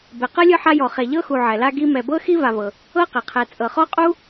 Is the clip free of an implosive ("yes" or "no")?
yes